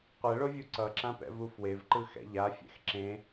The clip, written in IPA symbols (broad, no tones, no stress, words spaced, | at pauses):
qʷɛɭovʲu ǀʌǁãpɛ̰vu fwevǃɯxɛ̰ ʎafʲɛ̰x ǁẽ